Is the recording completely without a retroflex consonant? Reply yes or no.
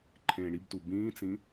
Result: no